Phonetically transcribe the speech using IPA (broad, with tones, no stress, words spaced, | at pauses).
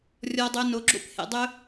rʲɔ˧dˤɵ˧ no˨˦ɡ͡ǁo̰˦p hḛ˨dˤɵ˦